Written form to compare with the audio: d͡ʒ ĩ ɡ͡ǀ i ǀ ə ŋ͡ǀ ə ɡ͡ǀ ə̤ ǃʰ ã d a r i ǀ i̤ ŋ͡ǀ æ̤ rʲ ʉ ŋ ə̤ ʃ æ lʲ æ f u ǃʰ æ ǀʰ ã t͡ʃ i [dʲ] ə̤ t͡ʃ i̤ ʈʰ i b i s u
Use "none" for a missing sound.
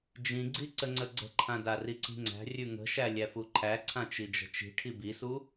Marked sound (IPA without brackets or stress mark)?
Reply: d͡ʒ